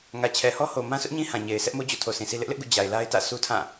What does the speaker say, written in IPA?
ŋ ä˨ t͡ɕʰ ɛ˨ h ɔ˦ h o˨ m ã˦ s ʊ˦ ʔ ɲ ĩ˦ h ã˨ ɲ e˨ ɪ̯ s ɛ˦ ʔ m o˦ d͡ʑ o̰˦˨ tʰ o˨ s ĩ˨ s i˦ l ɪ˦ ʔ l ɪ˦ ʔ ɡ ṵ˦˨ d͡ʑ a˨ ɪ̯ l a˦ ɪ̯ t ä̰˦˨ sʰ u˦ tʰ ã˦˨

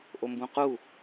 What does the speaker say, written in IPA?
ʔ o m b ũ q u

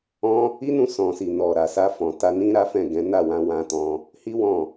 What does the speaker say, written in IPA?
ɔ̃˦ | i˦ n ũ˦˨ s ɔ̃˨ s i˨ n ɔ˨ ɾ a˨ s a˧ f ɔ̃˨ t a˧ n ĩ˦ ɾ a˦ f ɛ̃˦˨ ɡ ɛ̃˨˦ n a˦˨ w ã˧ w ã˧ t ɔ̃˧ | h i˦ w ɔ̃˦˨

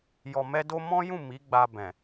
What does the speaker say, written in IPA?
j ɔ˨ m ɛ˧ d o˧ m ɔ̃˦ j ũ˦˨ m i˨˦ ɡ͡b a˧ b ɛ̃˨

